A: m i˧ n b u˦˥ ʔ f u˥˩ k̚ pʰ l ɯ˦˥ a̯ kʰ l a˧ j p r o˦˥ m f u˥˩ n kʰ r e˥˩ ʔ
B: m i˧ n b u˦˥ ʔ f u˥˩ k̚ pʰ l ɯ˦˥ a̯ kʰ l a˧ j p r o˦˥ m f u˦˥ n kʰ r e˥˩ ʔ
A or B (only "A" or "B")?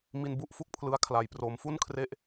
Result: A